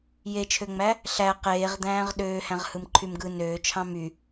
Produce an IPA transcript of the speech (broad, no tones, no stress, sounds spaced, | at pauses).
j e t͡ʃʰ ø ŋ͡m æ | ɬ æ q eː ʁ d̪ æ̃ː ʁ ɗ øː h æ̃ ʁ h ɯ m ǃʰ y m ɡ ɯ n øː t͡ʃʰ ɑ̃ m y